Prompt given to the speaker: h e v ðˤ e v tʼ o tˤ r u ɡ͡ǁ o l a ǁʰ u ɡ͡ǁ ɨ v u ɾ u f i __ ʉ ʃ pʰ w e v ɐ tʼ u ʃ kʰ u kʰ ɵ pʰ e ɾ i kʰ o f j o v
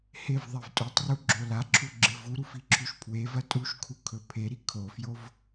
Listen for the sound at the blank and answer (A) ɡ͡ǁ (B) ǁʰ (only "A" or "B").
B